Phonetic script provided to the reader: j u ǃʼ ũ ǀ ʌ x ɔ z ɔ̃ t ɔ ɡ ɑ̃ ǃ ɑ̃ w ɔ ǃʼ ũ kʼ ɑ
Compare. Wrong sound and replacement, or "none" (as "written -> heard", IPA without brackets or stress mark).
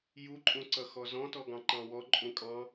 ɑ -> ɑ̃